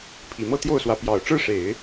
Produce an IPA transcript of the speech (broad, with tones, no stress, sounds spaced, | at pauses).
pʰ i˨˩ m ɤ˥˧ t̪ j o˥˩ ʊ̯ s w ä˧˥ p j ɑ˨˩ ʊ̯ ʈ͡ʂ ɻ̩˥˩ ʂ e˨˩˦ ɪ̯